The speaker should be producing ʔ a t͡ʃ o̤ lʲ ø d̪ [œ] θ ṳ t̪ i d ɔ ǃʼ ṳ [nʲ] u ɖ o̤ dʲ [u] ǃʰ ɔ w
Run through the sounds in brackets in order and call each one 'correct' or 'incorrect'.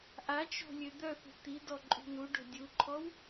correct, incorrect, correct

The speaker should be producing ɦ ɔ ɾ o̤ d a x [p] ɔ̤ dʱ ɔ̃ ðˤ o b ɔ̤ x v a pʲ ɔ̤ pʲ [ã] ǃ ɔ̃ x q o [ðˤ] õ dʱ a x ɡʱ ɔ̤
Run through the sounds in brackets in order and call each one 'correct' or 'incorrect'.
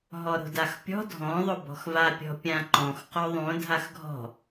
incorrect, correct, correct

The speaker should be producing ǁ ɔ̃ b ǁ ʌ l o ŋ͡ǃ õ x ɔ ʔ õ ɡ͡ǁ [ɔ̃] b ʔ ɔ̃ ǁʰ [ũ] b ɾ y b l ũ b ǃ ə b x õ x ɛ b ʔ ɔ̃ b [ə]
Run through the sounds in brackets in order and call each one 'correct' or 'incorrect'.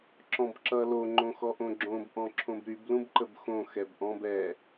incorrect, incorrect, incorrect

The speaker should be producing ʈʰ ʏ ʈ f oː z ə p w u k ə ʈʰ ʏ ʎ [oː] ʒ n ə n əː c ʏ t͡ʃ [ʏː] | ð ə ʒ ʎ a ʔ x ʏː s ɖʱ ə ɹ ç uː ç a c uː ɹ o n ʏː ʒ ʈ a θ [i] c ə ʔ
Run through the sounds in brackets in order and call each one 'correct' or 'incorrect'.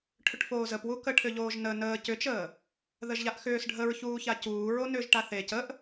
correct, incorrect, incorrect

